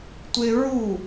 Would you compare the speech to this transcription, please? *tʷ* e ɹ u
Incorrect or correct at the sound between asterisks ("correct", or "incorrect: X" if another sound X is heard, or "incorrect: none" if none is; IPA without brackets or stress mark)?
correct